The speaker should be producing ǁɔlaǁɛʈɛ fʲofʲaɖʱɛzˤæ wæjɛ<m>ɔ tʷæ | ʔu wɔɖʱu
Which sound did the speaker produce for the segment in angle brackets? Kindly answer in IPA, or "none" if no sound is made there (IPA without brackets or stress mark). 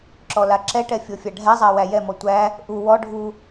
m